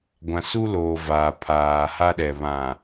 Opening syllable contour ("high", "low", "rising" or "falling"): low